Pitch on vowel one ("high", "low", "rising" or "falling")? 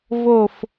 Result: falling